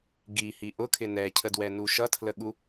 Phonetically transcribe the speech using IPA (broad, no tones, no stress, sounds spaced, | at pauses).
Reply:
ɡ i h i ʔ ʊ kʰ ɪ n ɛ cʰ ə d w ɛ n u ʃ ʌ tʰ l ə ɠ u